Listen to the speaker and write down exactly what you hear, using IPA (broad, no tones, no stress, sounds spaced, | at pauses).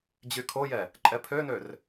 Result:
d͡ʑ y kʰ o j ɛ | ǃʼ ɛ pʰ ø n ø r